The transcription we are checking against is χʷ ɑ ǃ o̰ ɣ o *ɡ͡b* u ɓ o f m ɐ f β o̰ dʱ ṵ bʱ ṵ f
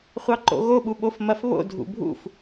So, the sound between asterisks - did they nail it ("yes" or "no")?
no